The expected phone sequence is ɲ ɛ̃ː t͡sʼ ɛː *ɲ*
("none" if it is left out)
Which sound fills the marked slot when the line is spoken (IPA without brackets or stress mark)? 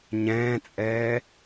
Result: none